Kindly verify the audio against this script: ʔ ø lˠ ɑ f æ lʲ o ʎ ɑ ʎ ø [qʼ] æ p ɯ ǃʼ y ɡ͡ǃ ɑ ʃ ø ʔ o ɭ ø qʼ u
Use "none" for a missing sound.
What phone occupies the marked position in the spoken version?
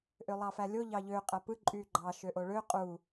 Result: qʼ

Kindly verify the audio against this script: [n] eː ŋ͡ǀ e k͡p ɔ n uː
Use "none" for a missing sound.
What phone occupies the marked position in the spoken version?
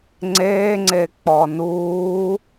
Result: ŋ͡ǀ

